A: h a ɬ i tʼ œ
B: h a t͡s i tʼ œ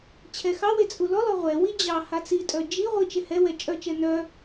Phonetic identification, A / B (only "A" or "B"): B